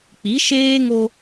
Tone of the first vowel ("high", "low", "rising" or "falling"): rising